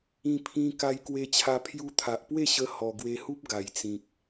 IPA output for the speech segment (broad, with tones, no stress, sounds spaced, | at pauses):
ĩ˧ pʰ ĩ˧ k a˧ j k w e˧ t͡ɕʰ a˧ pʰ j u˧ t̪ʰ a˨ ʔ p w e˥˧ ɕ ə˧ h ɔ˨˩ ɡ w e˧ h u˦ p̚ ɡ a˨˩ j t͡s ĩ˨ k̚